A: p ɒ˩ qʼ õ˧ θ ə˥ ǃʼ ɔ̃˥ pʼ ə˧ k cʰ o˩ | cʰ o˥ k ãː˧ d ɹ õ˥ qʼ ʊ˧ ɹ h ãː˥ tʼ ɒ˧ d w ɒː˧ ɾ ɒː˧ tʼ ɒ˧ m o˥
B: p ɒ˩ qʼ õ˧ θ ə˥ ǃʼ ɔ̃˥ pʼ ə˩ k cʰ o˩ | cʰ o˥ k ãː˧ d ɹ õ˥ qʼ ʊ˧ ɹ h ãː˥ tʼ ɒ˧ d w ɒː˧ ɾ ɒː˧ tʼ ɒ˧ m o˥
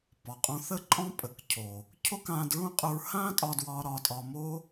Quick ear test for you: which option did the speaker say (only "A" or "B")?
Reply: B